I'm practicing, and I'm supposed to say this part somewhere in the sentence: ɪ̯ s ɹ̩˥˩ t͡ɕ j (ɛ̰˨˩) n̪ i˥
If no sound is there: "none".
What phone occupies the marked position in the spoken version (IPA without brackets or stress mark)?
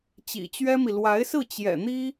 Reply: ɛ̰˨˩